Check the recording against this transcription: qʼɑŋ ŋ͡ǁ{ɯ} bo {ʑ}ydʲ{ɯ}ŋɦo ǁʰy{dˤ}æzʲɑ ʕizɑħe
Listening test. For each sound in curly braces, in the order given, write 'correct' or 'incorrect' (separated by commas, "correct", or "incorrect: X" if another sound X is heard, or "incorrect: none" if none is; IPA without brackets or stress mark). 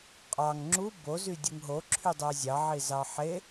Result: incorrect: u, incorrect: z, correct, correct